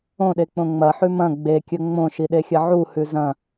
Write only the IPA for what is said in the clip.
õɗek͡põ ŋ͡mɐħʉ mɐ̃ ɡ͡bekʲɵ ŋ͡mõʃiɗexʲɐ ʕuhʉ zɐ̃

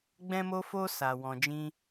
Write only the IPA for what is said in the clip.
ɡ͡bɛ̃˦mo˦fo˦ sa˧ wɔ̃˧d͡ʒĩ˦

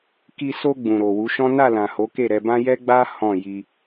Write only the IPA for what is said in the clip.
ki˧so˧ ɡ͡bũ˨ɾo˨wu˨˦ʃɔ̃˦ na˦˨lã˨ ho˨˦ke˦˨ɾɛ˧bã˦ jɛ˦ɡ͡ba˦ hɔ̃˦˨ji˧

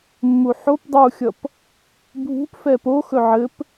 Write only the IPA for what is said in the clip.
mːuħop dˤuxʲʌp | bʱṳp fɛpoxɵ ʕɘp

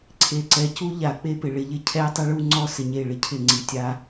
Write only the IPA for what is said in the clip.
ǀʰe˨ǀɛ˨cu˦ ʎa˨˦k͡pe˦pɪ˨ ɭɪ˨ʎɪ˦ cʰɛ˦tˤɪ˦ɭu˦ ŋ͡ǀɔ˦sɪ˨ɲe˦˨ ɭɪ˦cʰɪ˦˨ŋ͡ǀi˨ tʲa˦

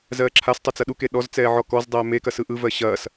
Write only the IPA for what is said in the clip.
zɜːǁʰastˤɪ t͡sɐɗuke ɗɔzt͡sɛː ʕɔkɔzdˤɛː mekɐ sɯʔɯvɜ ɕɐːs

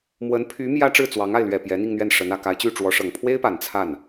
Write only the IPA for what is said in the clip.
mwə˧˥npʰy˧˥ mjä˥ʈ͡ʂɻ̩˥˩t͡swɑ˧˥ŋa˥˩ɪ̯ lɥɛ˨˩ pjɛ˧˥n̪i˥˧ŋn̪ɥɛ˥˩nʂə˧˥n ä˨˩ ka˧˥ɪ̯t͡ɕy˥˩ʈ͡ʂwɔ˧˥ʂɤ˨˩ŋ pʰwe˥ɪ̯pa˨˩n t͡sʰa˥˩n

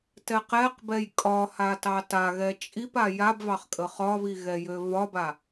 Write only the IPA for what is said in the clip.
tɛqɛqbɛj kʼɒha tɑtaɣɛ t͡ʃʼip ajabvɑχ kʼəχɒβi ɣɛjøvɒba

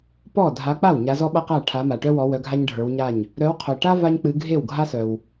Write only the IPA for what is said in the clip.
pɔ˥˩ dʱa˨˦k͡pa˥˩w ɲa˨˦zɔ˥ɓa˥qa˥˩ ʈʰa˨˦ma˩ʈœ˥wɔ˨˦ wœ˨˦ɡʱa˥ɲɖʱə˞˨˦wɲa˥˩ɲ | ɾœ˨˦wqʰœ˩ʈa˥ va˥ɲk͡pɨ˨˦ ɡʱe˥˩wɡʱa˥sœ˩w

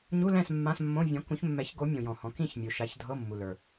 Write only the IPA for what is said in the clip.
ɲu˧˥˧lɛ̃˥˨s mːã˧˥˧smːõ˧˥˧ vʲɔ̃˨˦kũ˨˦çmːɛ˨˦çɡo˨˦ mʲõ˨jɔ̃˨hɔ̃˨˦ kĩ˥˨çmʲu˨ ʃa˨˦çdʱɤ˧˥˧mːu˨ lə˞˨

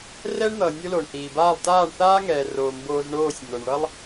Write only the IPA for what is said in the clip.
rɛ˦ɳn̪ʌː˨ nʲo˦ lo˨ɳhiː˨baː˦˨lˠ taː˦˨ɳθaː˦ŋɛː˨roː˨ mboː˧zɳoː˦˨sʲ n̪o˨ɳɭʌ˦lˠ

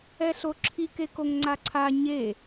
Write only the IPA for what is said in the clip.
ɛɬoǁʰik ekoŋŋ͡ǀaǀʰa ɲe

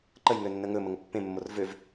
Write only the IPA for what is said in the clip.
ǃəj ŋønːəŋɵ məŋəpːẽ mːorvøv

